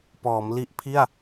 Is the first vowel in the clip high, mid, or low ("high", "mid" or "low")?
mid